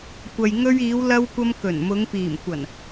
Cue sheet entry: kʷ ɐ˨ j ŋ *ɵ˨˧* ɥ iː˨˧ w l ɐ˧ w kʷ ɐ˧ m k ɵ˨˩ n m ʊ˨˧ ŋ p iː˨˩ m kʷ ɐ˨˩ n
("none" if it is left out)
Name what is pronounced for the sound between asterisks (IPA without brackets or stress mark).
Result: ɵ˧